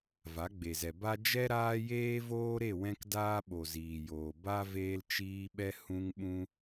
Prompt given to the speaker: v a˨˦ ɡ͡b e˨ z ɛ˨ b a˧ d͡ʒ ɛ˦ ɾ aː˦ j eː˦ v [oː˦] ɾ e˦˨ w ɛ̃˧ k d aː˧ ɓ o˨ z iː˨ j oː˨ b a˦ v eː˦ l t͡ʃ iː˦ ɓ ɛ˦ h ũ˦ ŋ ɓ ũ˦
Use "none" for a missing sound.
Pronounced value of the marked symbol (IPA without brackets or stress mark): oː˦